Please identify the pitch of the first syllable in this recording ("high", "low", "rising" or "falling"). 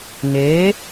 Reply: rising